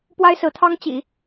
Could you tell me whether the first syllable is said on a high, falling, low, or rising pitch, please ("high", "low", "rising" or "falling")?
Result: high